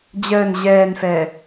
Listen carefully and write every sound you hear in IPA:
d͡ʑ əː n ʑ ɛː n f ɛː

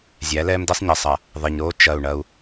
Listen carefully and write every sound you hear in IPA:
zʲ æ˨˦ l ɛː˦ m d e˦ sˤ ɲ e˨ sˤ ɐ˨ | ðˤ e˨ ɲ ɾ oː˦ t͡ʃ ɐ˦˨ u̯ ɳ ɐ˦ u̯

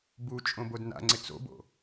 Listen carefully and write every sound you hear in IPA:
b u t͡ʃʼ õ b o d n a̰ ŋ͡ǀ ɪ t͡s o̰ b o̰

